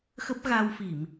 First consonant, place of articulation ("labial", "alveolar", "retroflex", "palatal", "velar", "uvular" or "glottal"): velar